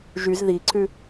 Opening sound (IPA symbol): ʒ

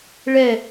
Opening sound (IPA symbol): ɭ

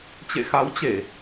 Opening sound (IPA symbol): t͡ɕ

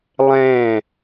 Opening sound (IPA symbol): lˠ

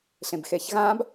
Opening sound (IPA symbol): ɬ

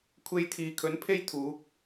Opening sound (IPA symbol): kʷʰ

